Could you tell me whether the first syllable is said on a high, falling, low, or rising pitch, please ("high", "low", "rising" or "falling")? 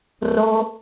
low